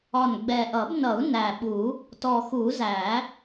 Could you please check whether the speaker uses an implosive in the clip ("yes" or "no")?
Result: yes